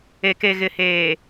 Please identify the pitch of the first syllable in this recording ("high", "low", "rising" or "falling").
low